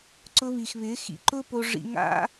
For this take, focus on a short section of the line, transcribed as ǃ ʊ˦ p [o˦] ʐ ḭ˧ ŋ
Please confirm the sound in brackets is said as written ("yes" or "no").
no